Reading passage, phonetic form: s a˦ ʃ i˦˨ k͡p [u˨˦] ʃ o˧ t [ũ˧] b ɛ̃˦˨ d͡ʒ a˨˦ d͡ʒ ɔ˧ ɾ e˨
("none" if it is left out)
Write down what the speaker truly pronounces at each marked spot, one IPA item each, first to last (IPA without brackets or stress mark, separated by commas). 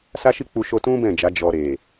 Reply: u˧, ũ˦